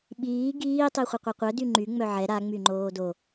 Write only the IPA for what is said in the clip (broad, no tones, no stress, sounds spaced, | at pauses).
ɓ iː ɡ iː tˤ i χʷ ɐ qʷ ɛ qʷ œ d y ŋ͡ǃ y ŋ͡m œ ʕ ɛ ɾ a ŋ͡m y ŋ͡ǃ oː d o